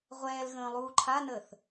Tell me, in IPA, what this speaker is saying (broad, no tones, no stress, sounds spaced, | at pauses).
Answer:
ʁʷ ɛː l ɣ ə̃ː lˠ uː ǃʰ a n əː θ